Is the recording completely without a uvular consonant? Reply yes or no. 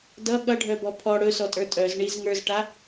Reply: yes